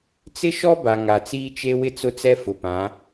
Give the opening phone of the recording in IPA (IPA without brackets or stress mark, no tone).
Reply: t͡s